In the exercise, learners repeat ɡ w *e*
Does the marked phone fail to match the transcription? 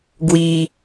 yes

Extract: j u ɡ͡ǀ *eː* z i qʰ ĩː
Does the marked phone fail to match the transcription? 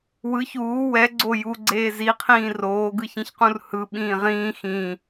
no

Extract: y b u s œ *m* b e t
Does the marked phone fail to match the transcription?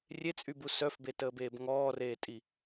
yes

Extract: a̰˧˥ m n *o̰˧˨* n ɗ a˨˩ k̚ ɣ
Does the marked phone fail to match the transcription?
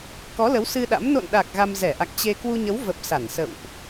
no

